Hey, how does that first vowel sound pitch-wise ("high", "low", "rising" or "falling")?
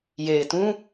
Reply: low